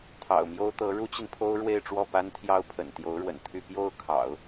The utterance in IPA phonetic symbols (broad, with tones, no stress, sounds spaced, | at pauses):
t̪ʰ ɑ̰˨˩ ʊ̯ m j o˥ ʊ̯ t̪ ɤ˧˥ ɻ u˥ t͡ɕ i˨ n pʰ o˥ ʊ̯ ɻ w e˥˧ ɪ̯ ʈ͡ʂ w ɔ˥˩ p a˥ n t̪ʰ j ɑ˥ ʊ̯ pʰ ə̰˨˩ n t̪ j o˧˥ ʊ̯ ɻ w ə̰˨˩ n t̪ʰ y˥˧ p j o˥˩ ʊ̯ kʰ ɑ̰˨˩˦ ʊ̯